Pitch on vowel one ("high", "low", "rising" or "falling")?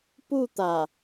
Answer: falling